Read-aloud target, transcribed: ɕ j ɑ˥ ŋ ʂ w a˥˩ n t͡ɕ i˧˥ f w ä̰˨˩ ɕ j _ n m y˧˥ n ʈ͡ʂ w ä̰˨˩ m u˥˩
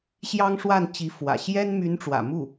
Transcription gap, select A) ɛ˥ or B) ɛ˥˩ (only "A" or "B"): A